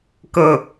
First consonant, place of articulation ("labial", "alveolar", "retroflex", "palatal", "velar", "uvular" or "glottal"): velar